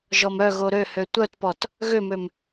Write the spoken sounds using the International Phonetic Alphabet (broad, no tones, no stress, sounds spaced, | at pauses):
ʒ ɔ m œ ɣ o ɾ ø h ø tʷ œ t p ɔ t | ɣ ø m ø m